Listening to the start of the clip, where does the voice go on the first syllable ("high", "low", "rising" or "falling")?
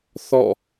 falling